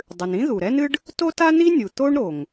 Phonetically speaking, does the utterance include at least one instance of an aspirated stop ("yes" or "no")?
no